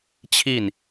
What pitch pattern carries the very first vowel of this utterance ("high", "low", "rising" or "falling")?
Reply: falling